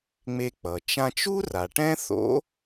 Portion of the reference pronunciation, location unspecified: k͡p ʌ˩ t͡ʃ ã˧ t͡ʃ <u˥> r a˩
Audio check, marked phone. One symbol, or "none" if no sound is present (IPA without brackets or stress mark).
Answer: u˥